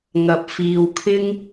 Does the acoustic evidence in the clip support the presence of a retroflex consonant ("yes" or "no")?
no